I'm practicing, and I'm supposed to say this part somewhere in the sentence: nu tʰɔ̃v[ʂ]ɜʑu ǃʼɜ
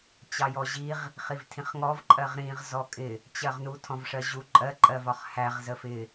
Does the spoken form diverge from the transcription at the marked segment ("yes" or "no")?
no